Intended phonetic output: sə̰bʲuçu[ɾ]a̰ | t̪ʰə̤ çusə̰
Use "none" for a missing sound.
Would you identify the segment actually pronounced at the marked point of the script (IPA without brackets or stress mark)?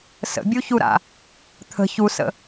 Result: ɾ